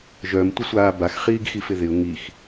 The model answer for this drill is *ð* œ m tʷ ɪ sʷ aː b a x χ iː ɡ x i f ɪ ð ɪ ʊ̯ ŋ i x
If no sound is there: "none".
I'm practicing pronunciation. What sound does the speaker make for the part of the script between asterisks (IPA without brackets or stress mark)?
ʒ